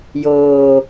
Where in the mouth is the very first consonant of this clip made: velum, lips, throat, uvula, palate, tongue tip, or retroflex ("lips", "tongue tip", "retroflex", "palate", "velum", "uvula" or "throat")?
palate